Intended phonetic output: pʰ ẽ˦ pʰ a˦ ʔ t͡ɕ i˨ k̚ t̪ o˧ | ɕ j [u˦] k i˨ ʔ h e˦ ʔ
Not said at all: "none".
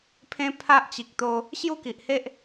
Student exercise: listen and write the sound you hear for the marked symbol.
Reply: u˥˧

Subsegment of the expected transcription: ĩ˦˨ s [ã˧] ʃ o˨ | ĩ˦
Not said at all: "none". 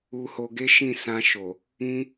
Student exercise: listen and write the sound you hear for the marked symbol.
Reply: ã˧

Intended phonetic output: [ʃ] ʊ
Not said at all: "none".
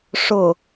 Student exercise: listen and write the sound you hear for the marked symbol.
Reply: ʂ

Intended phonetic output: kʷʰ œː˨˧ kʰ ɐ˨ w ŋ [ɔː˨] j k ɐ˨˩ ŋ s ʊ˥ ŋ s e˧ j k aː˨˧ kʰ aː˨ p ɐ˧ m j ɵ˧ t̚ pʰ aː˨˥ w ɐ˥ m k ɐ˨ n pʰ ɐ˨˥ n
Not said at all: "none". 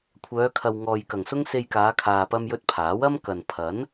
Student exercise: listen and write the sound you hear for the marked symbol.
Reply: ɔː˨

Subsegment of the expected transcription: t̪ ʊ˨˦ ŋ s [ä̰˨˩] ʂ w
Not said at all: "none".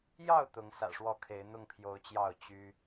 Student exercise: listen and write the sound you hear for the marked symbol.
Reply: ä̰˨˩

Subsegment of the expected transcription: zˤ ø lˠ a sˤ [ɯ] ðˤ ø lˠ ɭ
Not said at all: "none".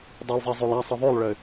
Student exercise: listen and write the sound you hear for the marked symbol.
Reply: ɯ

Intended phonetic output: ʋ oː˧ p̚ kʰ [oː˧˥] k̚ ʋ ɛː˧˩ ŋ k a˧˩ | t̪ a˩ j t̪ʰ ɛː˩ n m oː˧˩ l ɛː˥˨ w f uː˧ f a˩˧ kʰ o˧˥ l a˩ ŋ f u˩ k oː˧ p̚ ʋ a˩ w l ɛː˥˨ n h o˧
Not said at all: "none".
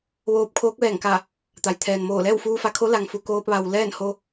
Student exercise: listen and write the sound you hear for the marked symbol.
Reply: oː˧˥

